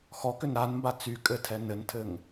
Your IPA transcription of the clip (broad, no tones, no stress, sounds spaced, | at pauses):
x ɔ k ʏ n ɾ a n m b a t͡s y kʼ ɘ tʰ ɛ n ɘ n tʰ ɘ ŋ